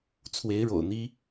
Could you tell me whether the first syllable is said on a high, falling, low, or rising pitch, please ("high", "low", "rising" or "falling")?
rising